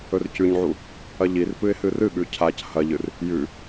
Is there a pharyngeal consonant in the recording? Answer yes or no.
yes